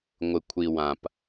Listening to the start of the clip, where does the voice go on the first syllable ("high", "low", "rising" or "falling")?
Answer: low